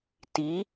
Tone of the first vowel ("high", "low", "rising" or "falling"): rising